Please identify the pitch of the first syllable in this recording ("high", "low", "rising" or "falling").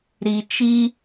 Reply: low